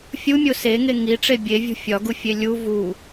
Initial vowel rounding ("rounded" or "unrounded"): rounded